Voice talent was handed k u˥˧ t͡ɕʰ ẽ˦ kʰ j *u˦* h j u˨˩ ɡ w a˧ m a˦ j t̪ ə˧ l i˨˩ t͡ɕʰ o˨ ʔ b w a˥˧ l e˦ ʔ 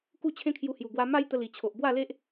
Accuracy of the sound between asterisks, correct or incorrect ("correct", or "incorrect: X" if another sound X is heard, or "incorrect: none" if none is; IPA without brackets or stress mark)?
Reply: incorrect: u˧